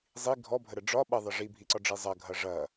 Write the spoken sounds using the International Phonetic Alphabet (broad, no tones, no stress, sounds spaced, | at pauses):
zˤ i ɡʱ ɔ bʱ ə ɾ ə ɖ͡ʐ ɒ ɓ ɐ ðˤ ɐ ʐ i bʱ i ǀ ɒ ɖ͡ʐ i zˤ ɐ ɡʱ ɐ ʐ ɐ